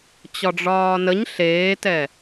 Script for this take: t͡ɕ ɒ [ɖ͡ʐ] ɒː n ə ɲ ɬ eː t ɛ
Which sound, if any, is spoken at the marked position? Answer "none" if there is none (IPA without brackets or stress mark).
ɖ͡ʐ